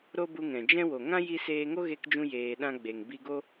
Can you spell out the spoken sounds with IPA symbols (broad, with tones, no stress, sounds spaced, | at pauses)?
ɾ o˦ b u˧ ŋ ɛ̃˨ d͡ʒ ɛ̃˦ w o˨ ŋ ã˦ j i˧ s eː˧ ŋ o˦ ɣ e˧ k d͡ʒ ũ˧ j eː˧ ɗ ã˦ ɡ͡b e˨ ŋ b i˧ ɡ o˦